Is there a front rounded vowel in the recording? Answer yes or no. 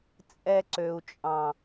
yes